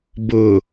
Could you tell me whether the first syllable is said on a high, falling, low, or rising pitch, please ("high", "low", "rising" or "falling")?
low